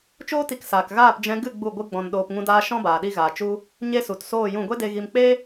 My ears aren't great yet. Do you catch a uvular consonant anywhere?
no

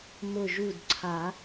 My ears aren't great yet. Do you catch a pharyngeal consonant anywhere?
no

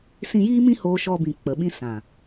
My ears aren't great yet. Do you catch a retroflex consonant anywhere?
no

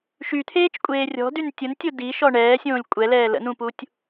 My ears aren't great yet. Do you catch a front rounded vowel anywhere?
yes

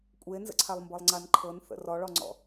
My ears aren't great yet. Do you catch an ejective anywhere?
yes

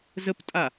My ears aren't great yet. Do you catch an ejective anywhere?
yes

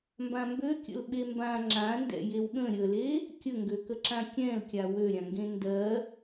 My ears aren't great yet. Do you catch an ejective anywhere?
no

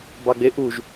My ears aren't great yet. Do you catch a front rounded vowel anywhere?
no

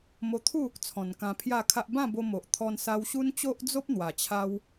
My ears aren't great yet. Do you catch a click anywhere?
no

